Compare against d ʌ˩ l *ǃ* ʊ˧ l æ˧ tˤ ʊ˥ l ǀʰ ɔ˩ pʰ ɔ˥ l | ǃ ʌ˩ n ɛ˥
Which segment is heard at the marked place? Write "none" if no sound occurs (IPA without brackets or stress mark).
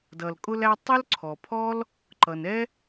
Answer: kʼ